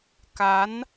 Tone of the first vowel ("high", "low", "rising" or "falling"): rising